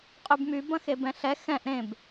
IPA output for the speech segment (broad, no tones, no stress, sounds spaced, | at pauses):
qʼ y b m y b ɐ̃ x e b ɛ̃ ɬ ɛ x ɛ̃ ʔ ɾ ẽ b